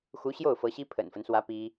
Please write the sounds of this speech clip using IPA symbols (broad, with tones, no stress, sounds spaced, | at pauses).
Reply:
x u˧˥ ɕ j o˥˩ ʊ̯ f ɤ˧˥ ɕ i˥ pʰ ə̰˨˩ n f ə˦ n s w ä˧˥ p i˥